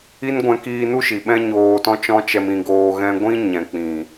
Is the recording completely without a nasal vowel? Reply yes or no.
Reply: no